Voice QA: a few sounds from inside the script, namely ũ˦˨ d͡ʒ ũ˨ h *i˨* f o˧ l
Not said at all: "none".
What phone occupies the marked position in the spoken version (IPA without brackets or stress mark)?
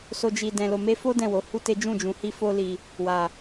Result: i˧